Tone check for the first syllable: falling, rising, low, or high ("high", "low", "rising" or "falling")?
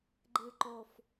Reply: low